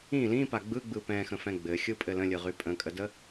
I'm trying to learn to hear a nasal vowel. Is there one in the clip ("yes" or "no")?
yes